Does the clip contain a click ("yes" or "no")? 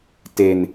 no